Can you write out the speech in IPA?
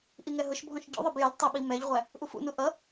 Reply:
ʔiŋɛɦʊʃbʱɔ̃ʃ ɟṵðˤʌb jəl tˤəɓi mɛʎʁʷæ | ʔufṵnu ʔʌ

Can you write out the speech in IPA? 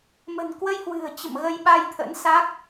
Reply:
mə̤˨˩nkwə˧jhwɨ̤˨˩ə̯ t͡ɕə̰˧˨mɣə˧jɓa˧jt̪ʰə̰˧˥n sa˦˥k̚

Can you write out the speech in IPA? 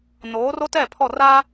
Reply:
noː˨˦ro˦tɛ˦˨ pʰɔ˦˨raː˦

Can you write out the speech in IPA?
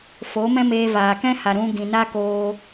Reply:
foː˨˦mɛ̃˦meː˧ vaː˨kɛ̃˦ ha˨ɾũ˧ ɡĩ˨na˦ koː˧

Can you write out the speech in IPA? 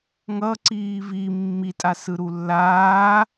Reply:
ŋʌ ǀiːvi mːi tʼasɯɾulːaː

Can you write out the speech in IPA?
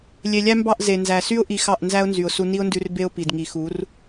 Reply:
lʲe˨lʲæ˦mbɑ˦˨ʔ ze˨nzæ˨ sy˦ʊ̯ ʔi˧ xɑ˦˨ʔnzæ˦ʊ̯nzy˨ʊ̯ su˧ni˦ʊ̯ndʉ˧r be˦ʊ̯ pi˨dŋi˨xu˨˦r

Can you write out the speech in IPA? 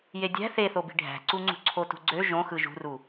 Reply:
jedʲæ̤ θeθobi̤ ɖʱæ̤ǀuŋ͡ǀṳ ǀʰotṳɡ͡ǀø ʒõxɯ ʒṳru

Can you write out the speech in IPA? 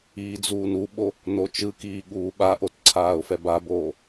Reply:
iːd͡zuːnuɓo | not͡ʃɯkiː ɠuːɓaʔotǀʰaːʊ̯ fɛbaboː

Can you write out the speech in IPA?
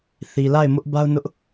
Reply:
θi˨la˦˨ɪ̯mʊ˦ʔ ba˦ʊ̯nʊ˦ʔ

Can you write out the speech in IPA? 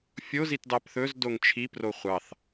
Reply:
fʲozit dɑpθɵz doŋt͡ʃʰipro χʷɑθ

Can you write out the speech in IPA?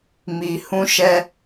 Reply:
mi˧hũ˦ʃɛ˦

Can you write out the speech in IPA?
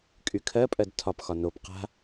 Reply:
kʼykʰɜpʼɜd tʰɒpxɒ nop qa̤

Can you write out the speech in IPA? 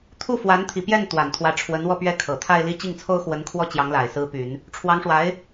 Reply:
t̪ʰu˥˩fwa˧˥nt̪ʰi˨˩pjɛ˥˩n t̪wa˨˩nt̪ʰwä˧˥ʈ͡ʂʰwə˧˥n wɔ˥˧pɥɛ˥˩kʰɤ˨˩ t̪ʰa˥˧ɪ̯ li˥˧ t͡ɕi˥˩ŋt͡sʰo˥ʊ̯xwə˧˥nkʰwɔ˥˩ t͡ɕjɑ˧˥ŋla˨˩ɪ̯ sɹ̩˧˥py˨˩˦n | ʈ͡ʂʰwɑ˧˥ŋʂwa˧˥ɪ̯

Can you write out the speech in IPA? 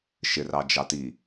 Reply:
ʃɪrɑd͡ʒɑ ti

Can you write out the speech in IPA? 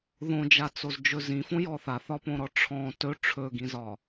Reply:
ðõd͡ʒat͡sozd͡ʒɵ zĩfõjɔ θaθɒpõɾɔ ʈ͡ʂʰɔ̃ tɵ ʈ͡ʂʰɵɡĩzɒ

